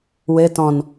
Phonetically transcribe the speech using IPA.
wɘ tɔ̃n

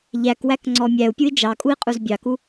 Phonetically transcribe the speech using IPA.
ʎækwækŋ͡ǀɔ mʲæu̯pʲui̯ d͡ʒɑkʼui̯qʼuz bʲɑku

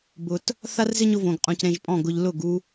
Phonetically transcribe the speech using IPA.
bʊ˨t | θa˦rzɪ˦ɲʊ˧võ˨ɡ qʼũ˨cɾẽ˧ʒpʼɔ̃˦˨ɡʊ˧ʎ lʊ˦˨ɡu˧

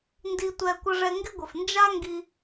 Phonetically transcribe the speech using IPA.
ndi˧tʷɛ˧ kʷə˧ʐɛ˧ ŋɡɪ˦ɡʷɘ˨f nd͡ʒa˦ŋɡi˧

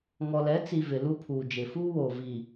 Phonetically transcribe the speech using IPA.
ŋɔ˨lɛ˨˦ t͡si˨ vɪ˨lu˦pʰuː˨d͡ʒɪ˨ fuː˦woː˨ vi˨

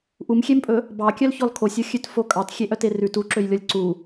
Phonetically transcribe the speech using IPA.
ʔumxʲempʼɵ | bɑkʲœlçɔl kʰosʲoxʲʉt fokʼɑt xʲeʔœterʉ tuǁøj lʲɔlʲǀu

